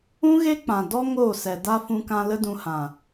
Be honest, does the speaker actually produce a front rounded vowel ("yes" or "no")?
no